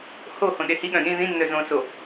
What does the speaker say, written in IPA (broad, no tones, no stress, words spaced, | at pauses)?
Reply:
ho hõɗehiɠœ̃ ɗĩ ðĩnːœ zõ so